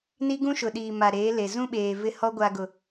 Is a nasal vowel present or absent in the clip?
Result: present